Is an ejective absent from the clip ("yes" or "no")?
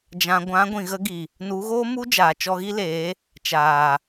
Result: yes